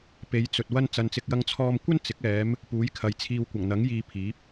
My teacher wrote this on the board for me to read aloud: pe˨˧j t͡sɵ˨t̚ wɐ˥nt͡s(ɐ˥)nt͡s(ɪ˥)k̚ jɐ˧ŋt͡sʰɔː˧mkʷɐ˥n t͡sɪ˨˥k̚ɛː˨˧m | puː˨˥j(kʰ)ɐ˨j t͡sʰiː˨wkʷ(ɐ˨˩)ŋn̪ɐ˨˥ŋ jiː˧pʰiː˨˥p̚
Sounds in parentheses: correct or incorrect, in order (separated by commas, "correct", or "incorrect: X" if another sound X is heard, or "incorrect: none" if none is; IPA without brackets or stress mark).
incorrect: ɐ˧, incorrect: ɪ˧, correct, correct